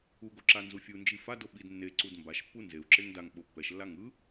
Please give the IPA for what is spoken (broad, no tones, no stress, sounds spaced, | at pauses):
u ɡ o ǁ a n z u fʲ u n d͡ʒ i f a d o ɓ i d nː e ǀ u d m b a ʃ pː u n z e u̯ ǁ e ŋ d a ŋ ɓ o pː ɛ ʃ lː a ŋ ɯ